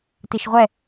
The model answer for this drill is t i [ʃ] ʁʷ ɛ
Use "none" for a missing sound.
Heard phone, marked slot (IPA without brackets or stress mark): ʃ